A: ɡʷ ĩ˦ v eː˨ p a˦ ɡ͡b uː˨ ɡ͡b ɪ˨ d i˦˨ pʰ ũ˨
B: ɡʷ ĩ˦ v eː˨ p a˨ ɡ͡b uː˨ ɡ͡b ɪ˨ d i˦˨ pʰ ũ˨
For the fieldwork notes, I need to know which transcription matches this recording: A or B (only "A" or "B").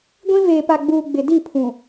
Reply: B